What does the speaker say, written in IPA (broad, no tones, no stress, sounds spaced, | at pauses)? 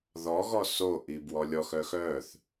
ð ɔ ɣ ɔ s o ʔ i b w ɔ lʲ ɔ x œ x œ θ